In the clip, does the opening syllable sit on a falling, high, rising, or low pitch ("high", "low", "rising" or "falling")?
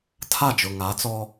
falling